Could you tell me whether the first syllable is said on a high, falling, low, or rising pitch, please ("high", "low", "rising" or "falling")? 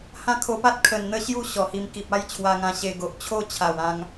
high